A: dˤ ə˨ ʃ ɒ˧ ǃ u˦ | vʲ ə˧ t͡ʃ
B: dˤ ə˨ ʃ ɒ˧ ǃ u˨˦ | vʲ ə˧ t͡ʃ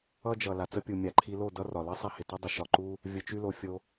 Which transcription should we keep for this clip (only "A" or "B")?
A